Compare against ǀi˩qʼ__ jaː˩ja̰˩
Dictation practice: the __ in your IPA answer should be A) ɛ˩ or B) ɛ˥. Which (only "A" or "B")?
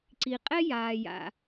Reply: B